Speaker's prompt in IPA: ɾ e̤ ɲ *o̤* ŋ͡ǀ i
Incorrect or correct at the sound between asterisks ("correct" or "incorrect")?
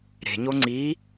incorrect